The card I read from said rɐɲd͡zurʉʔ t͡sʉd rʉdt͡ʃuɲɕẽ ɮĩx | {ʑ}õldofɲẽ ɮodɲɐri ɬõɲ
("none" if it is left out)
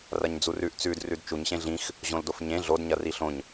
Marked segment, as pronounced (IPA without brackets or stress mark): ʑ